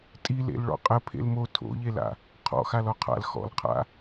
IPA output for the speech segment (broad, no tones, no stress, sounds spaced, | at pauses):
tʼ i l ḛ l ɭ ɔ̰ qʼ ə pʰ ḛ l m o tʰ o̰ ʎ e l a̰ | qʰ ɔ̰ x a l ɔ qʰ a̰ l x ɔ̰ l qʰ a̰